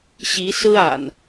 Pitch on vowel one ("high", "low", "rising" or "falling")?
rising